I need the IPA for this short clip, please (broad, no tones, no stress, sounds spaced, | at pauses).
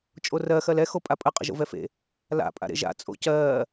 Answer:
t͡ʃʼ o r ɜ x ɜ l ɛ x o pʼ a pʼ ə qʼ ə̰ ʒ o̰ v ɛ f ḛ | l a̰ pʼ a̰ ɾ ḛ ʒ a̰ t͡sʼ o̰ c ɜː